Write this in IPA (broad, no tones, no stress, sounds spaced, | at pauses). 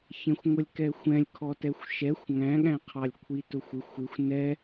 ç ɛ̃ xʷ ŋʷ ʌ lʲ k ɛ xʷ ɛ̃ lʲ kʰ ɔ t ɛ xʷ ʃ ɛ xʷ ŋ æ̃ ɠ æ̃ qʰ ɑ lʲ kʷʰ i t ʊ xʷ ɪ xʷ ɪ xʷ n ɛ